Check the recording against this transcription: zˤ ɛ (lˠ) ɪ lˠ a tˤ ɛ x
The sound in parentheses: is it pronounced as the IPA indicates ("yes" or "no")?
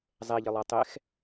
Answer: no